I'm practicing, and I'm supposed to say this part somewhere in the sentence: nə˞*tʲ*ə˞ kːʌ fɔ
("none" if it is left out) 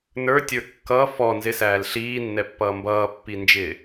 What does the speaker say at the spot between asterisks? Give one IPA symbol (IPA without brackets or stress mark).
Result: tʲ